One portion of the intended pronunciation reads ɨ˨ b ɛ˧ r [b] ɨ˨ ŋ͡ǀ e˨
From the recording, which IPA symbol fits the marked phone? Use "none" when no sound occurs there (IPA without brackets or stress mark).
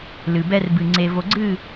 b